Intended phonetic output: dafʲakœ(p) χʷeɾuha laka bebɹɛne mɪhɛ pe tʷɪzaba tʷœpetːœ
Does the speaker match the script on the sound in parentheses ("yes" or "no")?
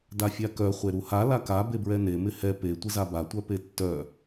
no